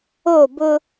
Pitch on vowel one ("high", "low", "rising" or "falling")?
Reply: falling